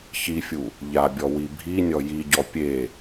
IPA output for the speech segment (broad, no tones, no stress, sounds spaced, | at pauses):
ç i fʲ u | ʎ a bʲ ɔ w i bʱ i nʲ ɔ j i ɟ ɔ pʲ e